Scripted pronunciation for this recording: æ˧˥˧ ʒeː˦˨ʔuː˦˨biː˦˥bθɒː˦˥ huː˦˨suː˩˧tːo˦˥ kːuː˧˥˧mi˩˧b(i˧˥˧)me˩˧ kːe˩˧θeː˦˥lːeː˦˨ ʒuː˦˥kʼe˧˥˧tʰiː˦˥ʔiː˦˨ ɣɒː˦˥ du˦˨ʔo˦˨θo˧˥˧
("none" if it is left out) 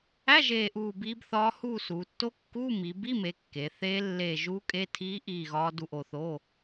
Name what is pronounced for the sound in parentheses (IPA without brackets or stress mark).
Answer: i˧˥˧